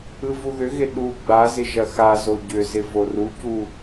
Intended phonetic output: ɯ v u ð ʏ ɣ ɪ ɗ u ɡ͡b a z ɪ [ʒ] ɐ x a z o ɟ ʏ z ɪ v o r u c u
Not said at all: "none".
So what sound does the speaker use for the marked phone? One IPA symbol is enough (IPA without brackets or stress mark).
ʒ